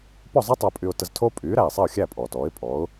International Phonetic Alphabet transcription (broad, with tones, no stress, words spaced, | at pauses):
pɔ˥˩zˤɛ˥ tˤæ˧pʼy˧ʊ̯ tə˧ztʰo˥ pʼyː˩˥ɾæ˩ɪ̯sˤɛ˥˩ʊ̯xʲæ˥˩ pʼɔː˩tɔː˩˥ɪ̯pʼɔ˩˥ʊ̯